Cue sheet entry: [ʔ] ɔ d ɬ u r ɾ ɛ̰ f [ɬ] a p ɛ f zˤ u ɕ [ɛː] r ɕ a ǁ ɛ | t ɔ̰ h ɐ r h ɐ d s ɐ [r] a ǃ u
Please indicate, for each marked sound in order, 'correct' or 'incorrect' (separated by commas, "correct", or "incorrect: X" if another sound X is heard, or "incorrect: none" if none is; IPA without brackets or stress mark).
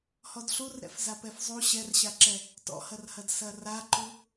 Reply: incorrect: h, incorrect: z, incorrect: ɛ, correct